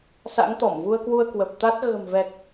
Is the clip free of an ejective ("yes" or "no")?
yes